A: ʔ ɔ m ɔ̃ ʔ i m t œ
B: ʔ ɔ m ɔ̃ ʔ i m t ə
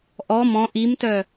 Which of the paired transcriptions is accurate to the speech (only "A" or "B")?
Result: A